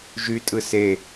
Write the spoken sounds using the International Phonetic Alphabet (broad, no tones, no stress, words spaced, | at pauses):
ʒytʼɯ se